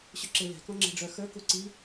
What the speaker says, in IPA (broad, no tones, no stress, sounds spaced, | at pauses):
ɕ ʏ ǁ e l ɛ̤ k ɔ̃ ŋ͡ǁ ɛ̤ ɖ͡ʐ œ x ə˞ k u ǀ i